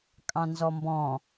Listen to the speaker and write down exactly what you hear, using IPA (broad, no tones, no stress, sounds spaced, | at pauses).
kʼ ɑ̃ n z ɔ m b ɔ̃